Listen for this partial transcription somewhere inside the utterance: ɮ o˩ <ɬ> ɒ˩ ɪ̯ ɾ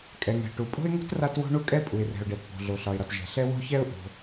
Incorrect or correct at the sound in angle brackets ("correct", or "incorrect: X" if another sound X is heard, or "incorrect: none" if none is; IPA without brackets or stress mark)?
correct